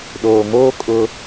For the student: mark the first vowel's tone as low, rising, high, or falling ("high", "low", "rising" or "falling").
low